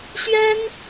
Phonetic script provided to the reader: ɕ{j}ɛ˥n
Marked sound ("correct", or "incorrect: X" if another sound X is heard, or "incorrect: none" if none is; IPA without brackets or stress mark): incorrect: ɥ